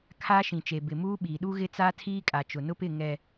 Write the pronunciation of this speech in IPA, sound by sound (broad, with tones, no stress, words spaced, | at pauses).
kʰaː˦ʃĩ˨t͡ʃe˨ bɪ˨muː˦ ɓiː˨ɗu˦ ɣɪ˦t͡saː˦tʰiː˦kʼa˨ t͡ʃʊ˨nʊ˦pɪ˦˨ ŋɛ˨